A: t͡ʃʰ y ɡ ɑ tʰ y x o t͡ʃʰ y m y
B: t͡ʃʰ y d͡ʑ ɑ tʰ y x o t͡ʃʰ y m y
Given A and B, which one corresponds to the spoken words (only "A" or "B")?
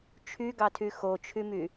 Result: A